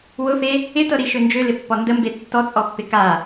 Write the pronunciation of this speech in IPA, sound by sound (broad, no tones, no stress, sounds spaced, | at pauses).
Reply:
w ʊ f e | ɪ t ɤ ɾ i ʃ ø n d͡ʒ ø l ɪ pː ɔ n d ə m b e tː ɔ t͡sʼ ɔ pː ɪ k a